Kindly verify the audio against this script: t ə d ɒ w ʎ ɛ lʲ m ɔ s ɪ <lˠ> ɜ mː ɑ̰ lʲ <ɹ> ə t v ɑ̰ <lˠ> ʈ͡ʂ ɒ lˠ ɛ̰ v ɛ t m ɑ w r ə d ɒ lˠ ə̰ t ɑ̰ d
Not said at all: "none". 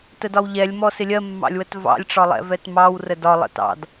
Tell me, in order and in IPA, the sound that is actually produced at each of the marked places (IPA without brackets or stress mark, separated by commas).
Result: lʲ, w, lʲ